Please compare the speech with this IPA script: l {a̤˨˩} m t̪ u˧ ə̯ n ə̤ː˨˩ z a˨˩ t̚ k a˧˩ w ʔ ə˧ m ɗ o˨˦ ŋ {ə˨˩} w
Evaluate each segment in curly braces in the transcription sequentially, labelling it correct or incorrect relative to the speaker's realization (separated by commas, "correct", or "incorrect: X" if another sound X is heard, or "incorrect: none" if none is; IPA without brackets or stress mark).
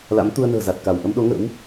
incorrect: a̰˧˥, incorrect: ə̰˧˥